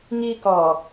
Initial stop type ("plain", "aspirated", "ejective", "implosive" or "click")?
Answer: plain